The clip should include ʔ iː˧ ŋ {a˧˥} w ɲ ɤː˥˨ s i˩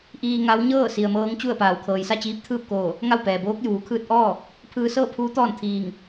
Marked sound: correct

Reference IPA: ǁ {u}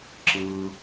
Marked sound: incorrect: ɯ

